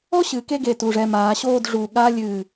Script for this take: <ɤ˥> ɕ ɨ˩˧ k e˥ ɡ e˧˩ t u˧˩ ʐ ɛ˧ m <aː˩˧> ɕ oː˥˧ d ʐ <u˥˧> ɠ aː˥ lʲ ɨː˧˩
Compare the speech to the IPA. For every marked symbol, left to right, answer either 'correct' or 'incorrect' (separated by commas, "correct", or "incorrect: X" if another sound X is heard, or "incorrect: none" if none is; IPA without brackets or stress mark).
incorrect: ɔ˥, correct, incorrect: u˧˩